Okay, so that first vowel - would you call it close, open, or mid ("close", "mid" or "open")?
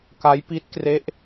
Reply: open